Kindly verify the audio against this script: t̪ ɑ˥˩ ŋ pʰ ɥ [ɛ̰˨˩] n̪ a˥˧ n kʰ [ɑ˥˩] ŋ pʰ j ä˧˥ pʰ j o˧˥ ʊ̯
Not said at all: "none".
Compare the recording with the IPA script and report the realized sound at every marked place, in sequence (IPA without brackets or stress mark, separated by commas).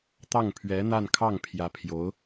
ɛ˧˥, ɑ˥˩